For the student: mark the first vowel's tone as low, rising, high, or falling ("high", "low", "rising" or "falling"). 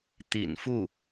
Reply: low